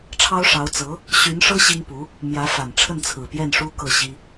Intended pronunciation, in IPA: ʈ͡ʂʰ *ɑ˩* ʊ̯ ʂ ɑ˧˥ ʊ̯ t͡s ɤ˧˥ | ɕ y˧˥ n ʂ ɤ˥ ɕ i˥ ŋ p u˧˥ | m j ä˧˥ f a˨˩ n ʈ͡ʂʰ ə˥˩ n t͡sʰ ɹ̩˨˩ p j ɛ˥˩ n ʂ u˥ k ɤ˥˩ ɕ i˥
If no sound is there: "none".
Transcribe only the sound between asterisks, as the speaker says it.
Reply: ɑ˥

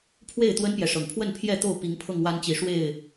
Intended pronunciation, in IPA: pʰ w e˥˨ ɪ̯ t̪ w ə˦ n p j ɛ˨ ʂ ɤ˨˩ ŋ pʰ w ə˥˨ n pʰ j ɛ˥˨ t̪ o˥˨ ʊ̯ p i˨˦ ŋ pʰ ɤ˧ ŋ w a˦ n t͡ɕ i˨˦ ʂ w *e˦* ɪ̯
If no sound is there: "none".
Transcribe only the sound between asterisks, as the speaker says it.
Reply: e˥˨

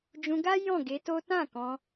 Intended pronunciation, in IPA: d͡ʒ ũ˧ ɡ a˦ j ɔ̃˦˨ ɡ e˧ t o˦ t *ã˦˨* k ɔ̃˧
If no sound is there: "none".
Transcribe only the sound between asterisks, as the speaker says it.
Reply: ã˦˨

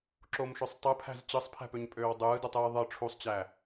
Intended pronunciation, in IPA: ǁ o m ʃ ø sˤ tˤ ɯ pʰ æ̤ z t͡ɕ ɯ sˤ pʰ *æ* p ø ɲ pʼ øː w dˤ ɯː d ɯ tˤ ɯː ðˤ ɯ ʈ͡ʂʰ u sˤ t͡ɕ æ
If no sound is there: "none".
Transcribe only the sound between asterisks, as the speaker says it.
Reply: æ̤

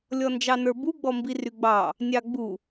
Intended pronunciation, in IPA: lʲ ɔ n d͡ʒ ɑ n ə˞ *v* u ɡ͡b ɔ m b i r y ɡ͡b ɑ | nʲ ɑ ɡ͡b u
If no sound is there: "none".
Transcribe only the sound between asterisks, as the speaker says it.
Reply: b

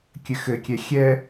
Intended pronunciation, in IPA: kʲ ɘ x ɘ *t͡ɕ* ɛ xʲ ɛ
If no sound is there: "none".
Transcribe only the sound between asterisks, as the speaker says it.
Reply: kʲ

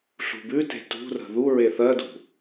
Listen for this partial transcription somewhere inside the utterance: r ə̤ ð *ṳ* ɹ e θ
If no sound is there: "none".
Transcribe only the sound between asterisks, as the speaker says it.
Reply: u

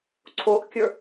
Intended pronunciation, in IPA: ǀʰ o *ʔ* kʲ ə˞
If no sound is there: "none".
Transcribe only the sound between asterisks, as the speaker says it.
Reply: ʔ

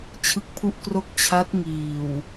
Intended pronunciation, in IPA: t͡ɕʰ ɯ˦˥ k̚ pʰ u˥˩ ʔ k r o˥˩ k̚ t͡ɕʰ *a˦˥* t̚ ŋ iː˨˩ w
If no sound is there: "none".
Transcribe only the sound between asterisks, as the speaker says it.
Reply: a˦˥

